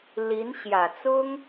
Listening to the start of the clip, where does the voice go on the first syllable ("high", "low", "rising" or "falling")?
rising